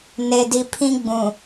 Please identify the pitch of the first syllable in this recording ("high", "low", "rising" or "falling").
low